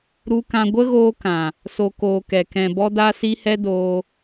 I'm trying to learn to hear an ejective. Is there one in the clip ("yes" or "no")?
no